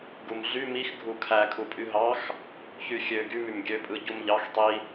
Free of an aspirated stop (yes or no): no